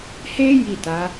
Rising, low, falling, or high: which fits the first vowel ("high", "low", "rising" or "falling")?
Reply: high